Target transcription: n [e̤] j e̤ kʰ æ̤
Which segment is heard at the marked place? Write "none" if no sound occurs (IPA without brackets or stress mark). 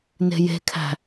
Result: e̤